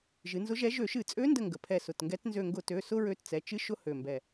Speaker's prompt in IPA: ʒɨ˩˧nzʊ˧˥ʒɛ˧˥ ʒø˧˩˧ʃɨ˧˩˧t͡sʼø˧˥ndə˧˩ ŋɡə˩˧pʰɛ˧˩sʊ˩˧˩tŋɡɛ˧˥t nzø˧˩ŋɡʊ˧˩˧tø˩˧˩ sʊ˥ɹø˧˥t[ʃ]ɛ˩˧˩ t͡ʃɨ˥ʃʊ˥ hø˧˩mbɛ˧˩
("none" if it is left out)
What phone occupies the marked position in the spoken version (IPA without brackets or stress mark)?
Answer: t͡s